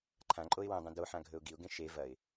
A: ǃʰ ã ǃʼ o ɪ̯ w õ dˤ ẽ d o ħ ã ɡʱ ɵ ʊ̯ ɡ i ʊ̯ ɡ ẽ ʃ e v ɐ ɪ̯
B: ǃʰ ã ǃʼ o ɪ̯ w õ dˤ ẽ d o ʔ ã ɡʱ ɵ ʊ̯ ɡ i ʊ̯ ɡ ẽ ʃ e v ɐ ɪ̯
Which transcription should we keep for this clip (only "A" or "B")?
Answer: A